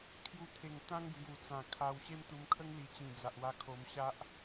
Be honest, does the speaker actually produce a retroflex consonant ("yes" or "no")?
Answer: no